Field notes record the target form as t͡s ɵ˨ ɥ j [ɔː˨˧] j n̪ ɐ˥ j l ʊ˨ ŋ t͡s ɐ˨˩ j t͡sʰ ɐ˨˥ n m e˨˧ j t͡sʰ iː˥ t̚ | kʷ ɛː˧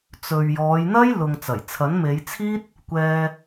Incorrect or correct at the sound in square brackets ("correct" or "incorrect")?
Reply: correct